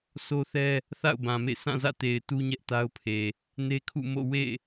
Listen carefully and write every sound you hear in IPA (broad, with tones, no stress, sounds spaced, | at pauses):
sʰ o˦ θ ɛ˦ | θ a̰˦˨ ʊ̯ b ã˨ m ḛ˦˨ s ã˦˨ z ä̰˦˨ t e˨ ɪ̯ t u˦ ɲ ɛ˦ ʔ t a˦ ʊ̯ pʰ e˨ | n e˦ kʰ ṵ˦˨ m o̰˦˨ w ḛ˦˨